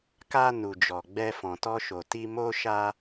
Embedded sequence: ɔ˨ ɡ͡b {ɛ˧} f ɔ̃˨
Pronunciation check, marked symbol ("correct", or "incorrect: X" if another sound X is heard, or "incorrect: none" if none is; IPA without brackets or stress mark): correct